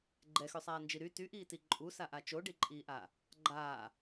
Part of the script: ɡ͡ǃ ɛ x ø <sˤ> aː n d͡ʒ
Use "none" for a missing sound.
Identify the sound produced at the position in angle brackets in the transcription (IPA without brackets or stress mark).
sˤ